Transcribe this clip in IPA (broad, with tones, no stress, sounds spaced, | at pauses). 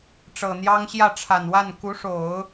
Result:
ʈ͡ʂ ɤ˨˩ n̪ j ɑ˥ ŋ ɕ j ä˥˩ ʈ͡ʂʰ a˨˩ n w a˥˩ n k u˧˥ ʂ o˨˩˦ ʊ̯